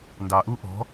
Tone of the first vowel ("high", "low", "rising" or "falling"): low